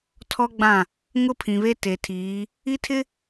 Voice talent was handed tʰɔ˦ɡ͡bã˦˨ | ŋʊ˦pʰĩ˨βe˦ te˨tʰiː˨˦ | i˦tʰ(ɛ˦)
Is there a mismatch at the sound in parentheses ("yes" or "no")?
yes